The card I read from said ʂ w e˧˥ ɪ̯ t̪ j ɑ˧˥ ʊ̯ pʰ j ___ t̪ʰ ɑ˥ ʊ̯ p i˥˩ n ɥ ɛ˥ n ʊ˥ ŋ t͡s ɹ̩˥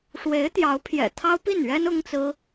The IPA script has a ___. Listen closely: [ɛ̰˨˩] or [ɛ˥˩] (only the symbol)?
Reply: ɛ̰˨˩